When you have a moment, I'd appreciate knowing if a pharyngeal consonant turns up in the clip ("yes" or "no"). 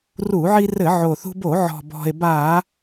yes